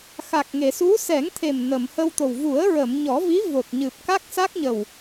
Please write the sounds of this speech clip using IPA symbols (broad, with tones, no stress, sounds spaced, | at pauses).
x a˨˩ k̚ ŋ e˨˩˨ s u˧˥ s ɛ˨˩˦ ŋ t̪ʰ e˨˩ m n ə˨˩˨ m h ə˧ w t̪ o˨˩ w v u˨˩˦ ə̯ ɹ ə˨˩˨ m ɲ ɔ˨˩˦ v i˧˥ v o˨˩ t̚ ɲ ɨ˨˩ p̚ k a˦˥ k̚ s a˦˥ k̚ ɲ ə˨˩ w